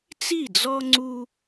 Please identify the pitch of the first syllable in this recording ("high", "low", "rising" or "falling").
falling